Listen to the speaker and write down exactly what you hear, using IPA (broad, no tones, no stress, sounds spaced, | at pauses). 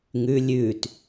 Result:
ŋ ʉ lʲ ʉː t